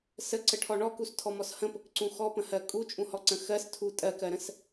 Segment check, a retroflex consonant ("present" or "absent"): present